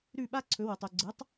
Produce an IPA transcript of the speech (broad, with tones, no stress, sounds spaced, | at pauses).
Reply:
ɾ ʉ˥˩ ɓ a˥ ǀʰ ɵ˩˥ w u˩ tˤ u˩ ɡ͡ǀ ɨ˩˥ tˤ